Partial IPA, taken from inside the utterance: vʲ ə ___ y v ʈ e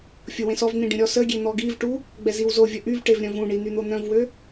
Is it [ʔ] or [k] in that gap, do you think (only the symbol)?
ʔ